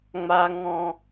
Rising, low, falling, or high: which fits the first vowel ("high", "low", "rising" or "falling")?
high